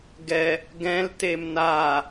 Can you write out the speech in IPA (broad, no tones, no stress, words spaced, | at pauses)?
ɡɛ | ɡɛ̃ltem na